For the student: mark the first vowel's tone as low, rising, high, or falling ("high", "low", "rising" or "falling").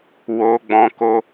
high